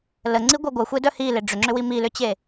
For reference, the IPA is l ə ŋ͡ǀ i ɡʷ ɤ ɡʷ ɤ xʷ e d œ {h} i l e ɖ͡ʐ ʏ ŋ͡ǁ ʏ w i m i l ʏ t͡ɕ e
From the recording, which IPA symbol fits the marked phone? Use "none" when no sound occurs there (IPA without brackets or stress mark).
h